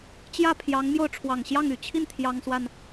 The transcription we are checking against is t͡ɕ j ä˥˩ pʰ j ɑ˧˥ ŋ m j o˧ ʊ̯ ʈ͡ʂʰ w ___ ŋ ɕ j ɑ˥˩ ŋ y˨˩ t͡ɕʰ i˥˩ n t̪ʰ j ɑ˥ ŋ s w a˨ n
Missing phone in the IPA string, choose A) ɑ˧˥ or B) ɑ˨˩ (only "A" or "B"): B